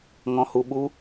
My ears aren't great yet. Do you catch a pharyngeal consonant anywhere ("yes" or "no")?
no